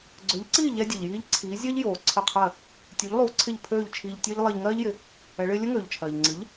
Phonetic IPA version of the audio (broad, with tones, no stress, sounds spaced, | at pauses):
ɡ͡ǀ ø˩˥ ʎ ǀ iː˥˩ ʎ ɛ˥ dʲ ɨ˩ ʎ j iː˥ ʎ ǀʰ iː˩˥ zʲ ɜ˥ ʎ j oː˩ ǀʰ ə˥˩ qʰ ɜ˥˩ | tʲ u˩˥ ʎ lˠ u˩˥ ǀʰ ɪ˥˩ ʎ pʰ øː˥˩ ʎ t͡ʃʰ iː˧ ʎ tʲ ɜ˥ ʎ lˠ ɜ˧ ʎ ŋ ɜː˥ ʎ j ɪ˩˥ | ɛ˩˥ ɭ ɪː˥ lʲ ə˥ ŋ øː˩ ʎ t͡ʃʰ ɜː˩ ʎ ŋ͡ǀ ɨ˩˥ ʎ